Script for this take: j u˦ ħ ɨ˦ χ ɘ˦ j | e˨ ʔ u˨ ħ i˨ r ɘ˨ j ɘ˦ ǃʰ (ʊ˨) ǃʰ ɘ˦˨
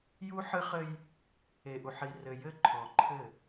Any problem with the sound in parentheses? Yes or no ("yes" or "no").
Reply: yes